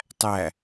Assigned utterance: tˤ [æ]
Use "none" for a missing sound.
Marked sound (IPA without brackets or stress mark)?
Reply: æ